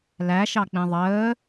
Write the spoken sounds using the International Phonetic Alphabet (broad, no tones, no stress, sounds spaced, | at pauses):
l æ ʃ ɑ k͡p ĩ ðˤ əː